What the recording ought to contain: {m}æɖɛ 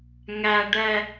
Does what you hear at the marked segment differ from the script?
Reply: yes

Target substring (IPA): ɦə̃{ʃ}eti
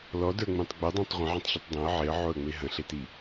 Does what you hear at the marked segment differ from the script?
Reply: yes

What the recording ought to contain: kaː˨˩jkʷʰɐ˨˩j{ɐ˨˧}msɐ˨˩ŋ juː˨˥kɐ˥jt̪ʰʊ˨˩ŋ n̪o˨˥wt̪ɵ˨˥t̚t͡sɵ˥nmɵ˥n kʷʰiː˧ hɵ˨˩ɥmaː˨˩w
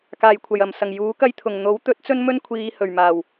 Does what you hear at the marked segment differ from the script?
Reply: yes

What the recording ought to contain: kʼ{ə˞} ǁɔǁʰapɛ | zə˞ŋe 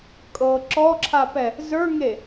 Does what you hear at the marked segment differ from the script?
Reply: yes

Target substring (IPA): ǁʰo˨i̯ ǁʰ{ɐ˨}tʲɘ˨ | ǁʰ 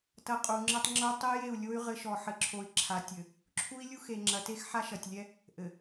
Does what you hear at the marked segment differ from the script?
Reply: yes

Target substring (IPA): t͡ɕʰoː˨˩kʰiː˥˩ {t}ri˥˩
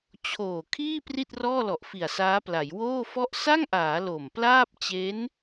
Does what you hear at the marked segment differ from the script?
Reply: yes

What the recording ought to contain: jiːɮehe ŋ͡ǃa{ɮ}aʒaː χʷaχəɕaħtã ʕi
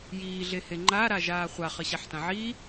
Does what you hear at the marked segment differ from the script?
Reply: yes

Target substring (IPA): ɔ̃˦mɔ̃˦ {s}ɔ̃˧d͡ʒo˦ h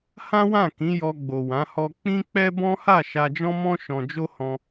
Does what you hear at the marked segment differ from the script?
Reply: yes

